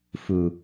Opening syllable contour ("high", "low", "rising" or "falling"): low